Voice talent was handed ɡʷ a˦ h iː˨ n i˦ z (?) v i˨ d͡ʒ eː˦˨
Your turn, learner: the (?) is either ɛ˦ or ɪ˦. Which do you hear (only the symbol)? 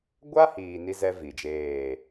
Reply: ɛ˦